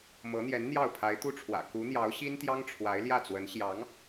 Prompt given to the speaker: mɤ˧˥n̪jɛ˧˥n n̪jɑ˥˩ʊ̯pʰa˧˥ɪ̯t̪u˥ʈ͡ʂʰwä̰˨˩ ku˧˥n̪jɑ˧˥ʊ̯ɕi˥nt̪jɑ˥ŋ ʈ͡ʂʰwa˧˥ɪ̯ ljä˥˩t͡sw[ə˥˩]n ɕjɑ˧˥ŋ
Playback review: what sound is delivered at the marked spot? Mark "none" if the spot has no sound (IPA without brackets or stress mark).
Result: ə˧˥